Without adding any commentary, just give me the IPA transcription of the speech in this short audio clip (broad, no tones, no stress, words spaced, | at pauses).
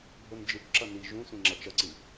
bʱond͡ʒɯkǁʌ ni ʒũ sʷĩŋ͡ǁʌt͡ʃʌǀi